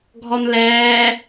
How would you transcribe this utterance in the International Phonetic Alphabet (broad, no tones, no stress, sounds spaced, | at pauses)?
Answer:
ɡʱ ɔ n l ɛː